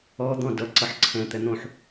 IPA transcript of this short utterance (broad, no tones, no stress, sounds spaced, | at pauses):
ɔ d̪ ɔ̃ d ʌ ǀ ʌ ħ ǀʰ ɛ̃ t̪ ɛ n̪ õ ħ